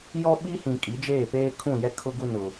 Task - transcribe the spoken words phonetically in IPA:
j ɔ˦ ɓ i˦ h ĩ˨ kʼ i˨˦ d͡ʒ eː˦˨ p eː˦ kʰ ũ˦˨ j ɛ˦ kʰ ʊ˦ ɡ u˦ n ʊ˨

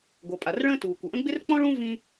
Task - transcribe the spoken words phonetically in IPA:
ɡʷ ʌ˩ pʼ a˩ r ɭ ə̃ː˥ t uː˩ kʷ ə˩ ʔ ə̃˥ ɡ͡b ɪ˥ r k͡p ɔ̃˥ ɭ ũ˥ v ĩ˥

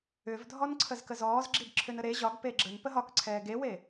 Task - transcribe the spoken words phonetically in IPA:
ʏ v dʱ ɔ n ǀʰ ə z k ə z ɔː z ɡ͡ǁ i b ǁʰ ʏ n ə ɾ e ʑ ɒ ɡ p e ɡ͡ǁ ə n p ə ɦ ɒ k ǀʰ ɛː ɡ e w e

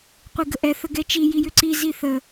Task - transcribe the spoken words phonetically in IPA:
qʷ i ɡ ə ʔ ɛ θ ə ɡ ɛ t͡ʃ i j i j ʏ ǀ i z i θ ə

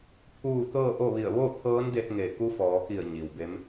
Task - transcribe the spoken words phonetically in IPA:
pʰ uː˥˨ t̪ ɤː˥˨ ʔ o˥˨ ʋ i˧˩ ə̯ ʋ o˥˨ t̪ʰ ɤː˧˥ n d e˧ t̚ ŋ e˧˩ k u˧˥ f ɔː˩˧ k i˧˩ ə̯ ɲ i˩ w b e˧˥ m

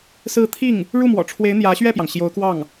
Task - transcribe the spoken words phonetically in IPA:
s ɹ̩˥˧ t̪ʰ i˥˩ ŋ | ɻ u˥˩ m w ɔ̰˨˩ ʈ͡ʂʰ w e˧˥ ɪ̯ n̪ j ä˧˥ ɕ ɥ ɛ˥˩ p j ɑ˩ ŋ ɕ j o˧˥ ʊ̯ k w ɑ˥˩ ŋ

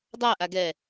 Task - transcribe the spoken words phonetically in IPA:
dˤ a ʔ a ɡ ɛ

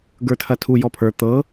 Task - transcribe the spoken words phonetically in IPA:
ɡ ə˞ tʰ ɐ tʰ u j ɔ pʰ ə˞ t̪ ɤ

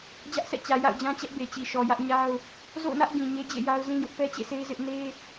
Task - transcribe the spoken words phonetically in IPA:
d͡ʑ ä˦ ʔ sʰ ɛ̰˦˨ t͡ɕ ä˨ j a̰˦˨ ʊ̯ d͡ʑ ã˦ t͡ɕ ɛ˦ ʔ b e˨ t͡ɕ i˨ ʃ ɔ˨ j ä˦ ʔ ɲ a˦ ʊ̯ | z o̰˦˨ ʊ̯ n ä˦ ʔ ɡ ĩ˨ ɲ e˦ d͡ʑ ḛ˦˨ j a˦ ʊ̯ z ĩ˦ j ʊ˦ ʔ p ɛ˦ t͡ɕ ḛ˦˨ sʰ e˦ ɪ̯ z ɪ˦ ʔ n e˦

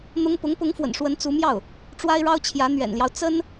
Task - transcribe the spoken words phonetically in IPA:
n̪ ʊ˥ ŋ p ʊ˧˥ ŋ p ʊ˧˥ ŋ f w ə̰˨˩ n ʂ w ə˧˥ n t͡s u˧˥ m j ɑ˥˩ ʊ̯ | ʈ͡ʂ w a˥ ɪ̯ ɻ ɑ˥ ʊ̯ t͡ɕʰ j ä˧˥ n̪ ɥ ɛ̰˨˩ n l j ɑ˦ ʊ̯ t͡s ə˥ n

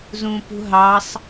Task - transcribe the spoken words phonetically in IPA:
z ũ p ṳ ɦ ɑ sˤ

